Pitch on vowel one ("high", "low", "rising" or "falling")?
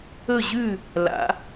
falling